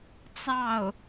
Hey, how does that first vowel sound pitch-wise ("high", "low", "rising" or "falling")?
falling